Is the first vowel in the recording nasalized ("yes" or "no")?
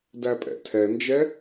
no